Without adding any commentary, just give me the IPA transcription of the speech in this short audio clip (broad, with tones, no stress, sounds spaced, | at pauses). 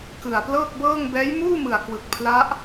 k ɯ˨˩ a̯ p l ɤː˥˩ k̚ b ɤː˥˩ ŋ b ɛː˦˥ j m uː˥˩ m ɯ˨˩ a̯ k w ɯ˨˩ k̚ pʰ l a˦˥ ʔ